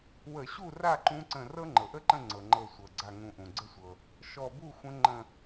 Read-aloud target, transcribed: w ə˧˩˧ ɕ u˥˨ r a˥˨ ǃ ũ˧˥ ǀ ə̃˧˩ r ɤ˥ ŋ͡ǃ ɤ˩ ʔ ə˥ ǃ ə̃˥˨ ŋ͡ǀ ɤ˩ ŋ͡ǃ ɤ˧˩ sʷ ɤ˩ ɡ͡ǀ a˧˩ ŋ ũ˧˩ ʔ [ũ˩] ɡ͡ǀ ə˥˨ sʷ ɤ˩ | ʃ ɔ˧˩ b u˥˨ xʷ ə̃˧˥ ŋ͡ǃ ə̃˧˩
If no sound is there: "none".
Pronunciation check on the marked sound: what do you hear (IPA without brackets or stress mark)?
ũ˩